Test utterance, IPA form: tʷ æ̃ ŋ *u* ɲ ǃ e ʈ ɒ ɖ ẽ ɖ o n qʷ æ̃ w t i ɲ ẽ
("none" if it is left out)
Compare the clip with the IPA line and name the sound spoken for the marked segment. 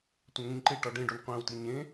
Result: ũ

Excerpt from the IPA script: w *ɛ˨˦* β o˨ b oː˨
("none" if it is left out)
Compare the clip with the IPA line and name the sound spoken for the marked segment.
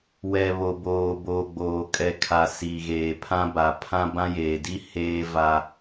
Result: ɛ˨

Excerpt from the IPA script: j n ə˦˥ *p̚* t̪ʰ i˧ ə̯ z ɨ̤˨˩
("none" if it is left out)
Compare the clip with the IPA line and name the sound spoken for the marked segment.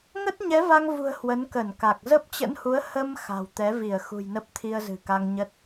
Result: p̚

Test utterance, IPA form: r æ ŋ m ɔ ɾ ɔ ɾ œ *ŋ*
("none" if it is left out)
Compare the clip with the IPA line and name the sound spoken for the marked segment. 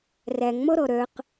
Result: q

